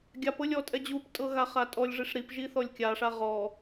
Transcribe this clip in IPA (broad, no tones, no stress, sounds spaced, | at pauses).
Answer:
ɡʲ a p ɤ lʲ ɔ tʼ ɛ d͡ʑ u p tʼ ɤ ɣ a χ a tʼ ɔ lʲ ʐ i ʂ ɾ i p ʒ i θ ɔ lʲ kʲ a ʂ a ʁ ɔ